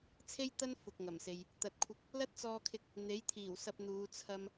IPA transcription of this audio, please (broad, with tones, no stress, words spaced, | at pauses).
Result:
t͡sʰe˥jt̪ɐ˥n fʊ˨k̚ŋɐ˨˩mse˨j | t̪ɐ˨t̚kʷʰɪ˧k̚ | lɐ˥t̚t͡sɔː˧kʰɪ˧k̚ | n̪e˨˥jt̪ʰiː˨˩wsɐ˧p̚n̪uː˨˧ t͡sʰɐ˥m